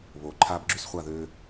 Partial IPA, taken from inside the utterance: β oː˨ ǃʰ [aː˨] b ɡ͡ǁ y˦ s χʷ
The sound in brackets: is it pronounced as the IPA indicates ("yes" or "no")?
no